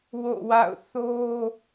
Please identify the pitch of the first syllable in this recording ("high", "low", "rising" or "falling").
falling